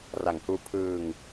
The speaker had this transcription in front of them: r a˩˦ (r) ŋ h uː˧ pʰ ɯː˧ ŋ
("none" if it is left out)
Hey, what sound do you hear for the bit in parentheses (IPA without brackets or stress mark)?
none